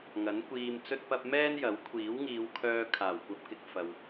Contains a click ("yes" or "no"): no